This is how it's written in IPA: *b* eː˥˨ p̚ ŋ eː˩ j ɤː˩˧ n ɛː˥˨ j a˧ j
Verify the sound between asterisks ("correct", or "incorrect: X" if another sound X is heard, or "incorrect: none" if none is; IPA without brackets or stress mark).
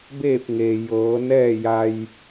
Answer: correct